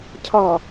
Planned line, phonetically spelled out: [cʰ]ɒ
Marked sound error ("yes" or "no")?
no